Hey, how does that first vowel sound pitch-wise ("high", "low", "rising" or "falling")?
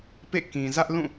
falling